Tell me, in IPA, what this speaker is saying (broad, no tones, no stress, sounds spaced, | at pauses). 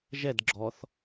ʒ ɛ d ɡ͡ǁ ɔ θ